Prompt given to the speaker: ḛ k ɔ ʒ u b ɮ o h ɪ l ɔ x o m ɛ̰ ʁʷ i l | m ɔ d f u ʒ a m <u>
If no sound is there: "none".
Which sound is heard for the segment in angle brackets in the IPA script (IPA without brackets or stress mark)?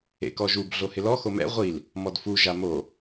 o